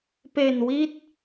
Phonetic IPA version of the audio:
pe˨˩n wi˥˩t̚

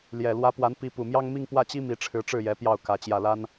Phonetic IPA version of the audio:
ljɛ˨˩ lwä˧˥pwa˧˥n pi˧˥pu˨˩ mjɑ˥ŋ mi˥˧ŋpwä˥˩t͡ɕi˥ mi˧˥ʈ͡ʂʰɻ̩˧˥ʈ͡ʂɻ̩˥˩jɛ˧˥ pjɑ˥˩ʊ̯kä˧˥ t͡ɕjä˥˩la˥n

